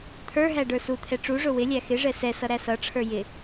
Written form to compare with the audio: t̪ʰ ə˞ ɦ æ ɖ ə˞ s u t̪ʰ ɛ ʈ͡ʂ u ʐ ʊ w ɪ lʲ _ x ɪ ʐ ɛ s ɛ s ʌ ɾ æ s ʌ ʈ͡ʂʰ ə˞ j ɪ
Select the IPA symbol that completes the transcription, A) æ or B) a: A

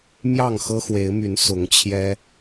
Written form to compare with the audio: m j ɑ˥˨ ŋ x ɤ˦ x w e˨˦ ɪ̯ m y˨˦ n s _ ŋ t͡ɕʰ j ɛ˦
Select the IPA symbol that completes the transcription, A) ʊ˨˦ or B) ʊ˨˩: A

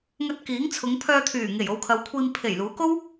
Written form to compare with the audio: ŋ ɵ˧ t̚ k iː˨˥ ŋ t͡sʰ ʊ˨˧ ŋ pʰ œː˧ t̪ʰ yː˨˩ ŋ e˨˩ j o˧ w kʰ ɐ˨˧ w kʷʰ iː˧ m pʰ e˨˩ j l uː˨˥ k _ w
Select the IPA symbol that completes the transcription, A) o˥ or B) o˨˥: A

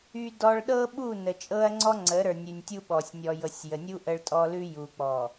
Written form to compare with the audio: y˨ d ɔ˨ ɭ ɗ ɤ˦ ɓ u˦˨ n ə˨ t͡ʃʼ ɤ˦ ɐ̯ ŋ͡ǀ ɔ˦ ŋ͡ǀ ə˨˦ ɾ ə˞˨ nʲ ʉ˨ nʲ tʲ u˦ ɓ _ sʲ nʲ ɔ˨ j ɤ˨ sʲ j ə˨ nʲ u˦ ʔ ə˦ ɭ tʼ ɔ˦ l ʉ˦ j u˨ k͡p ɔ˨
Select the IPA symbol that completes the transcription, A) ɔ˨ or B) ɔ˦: A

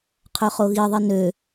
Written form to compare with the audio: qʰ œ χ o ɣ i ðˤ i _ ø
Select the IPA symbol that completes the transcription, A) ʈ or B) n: B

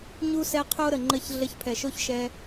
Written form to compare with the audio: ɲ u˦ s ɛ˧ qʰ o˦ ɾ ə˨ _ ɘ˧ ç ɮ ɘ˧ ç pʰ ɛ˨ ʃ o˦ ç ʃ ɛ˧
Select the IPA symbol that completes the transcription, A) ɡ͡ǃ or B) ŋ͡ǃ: B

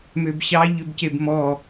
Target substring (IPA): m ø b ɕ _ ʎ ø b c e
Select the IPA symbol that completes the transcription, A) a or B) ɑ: B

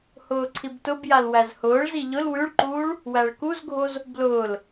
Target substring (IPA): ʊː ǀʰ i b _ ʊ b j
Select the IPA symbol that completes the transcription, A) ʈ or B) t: B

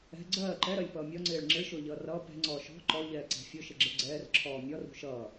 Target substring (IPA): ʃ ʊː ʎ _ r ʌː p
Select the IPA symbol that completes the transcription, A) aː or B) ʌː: B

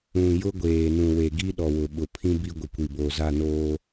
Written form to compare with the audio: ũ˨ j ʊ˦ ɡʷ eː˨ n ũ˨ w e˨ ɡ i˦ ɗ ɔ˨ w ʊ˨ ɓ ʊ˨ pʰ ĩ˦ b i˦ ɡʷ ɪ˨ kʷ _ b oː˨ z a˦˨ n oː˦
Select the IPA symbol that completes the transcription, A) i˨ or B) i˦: A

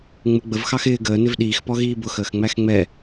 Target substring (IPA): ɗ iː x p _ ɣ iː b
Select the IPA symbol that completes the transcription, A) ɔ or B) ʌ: A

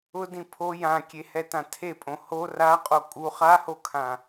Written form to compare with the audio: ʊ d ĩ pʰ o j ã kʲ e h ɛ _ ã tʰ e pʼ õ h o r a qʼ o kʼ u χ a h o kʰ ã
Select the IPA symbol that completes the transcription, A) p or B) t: B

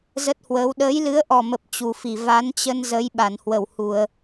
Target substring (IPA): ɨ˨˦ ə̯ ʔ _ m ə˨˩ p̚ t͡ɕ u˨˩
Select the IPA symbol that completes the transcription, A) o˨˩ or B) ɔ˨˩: B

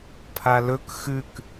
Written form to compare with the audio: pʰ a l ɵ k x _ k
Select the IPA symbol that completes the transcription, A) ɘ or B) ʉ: B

